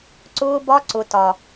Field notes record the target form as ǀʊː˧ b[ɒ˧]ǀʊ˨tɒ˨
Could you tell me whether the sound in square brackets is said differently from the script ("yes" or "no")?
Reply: no